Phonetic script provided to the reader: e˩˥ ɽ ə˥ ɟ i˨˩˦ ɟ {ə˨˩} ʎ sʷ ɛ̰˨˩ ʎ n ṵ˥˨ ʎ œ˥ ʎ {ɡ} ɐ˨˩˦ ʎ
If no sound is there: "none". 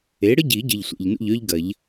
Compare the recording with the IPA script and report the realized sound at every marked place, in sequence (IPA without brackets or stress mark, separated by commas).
ə˨˩, ɡ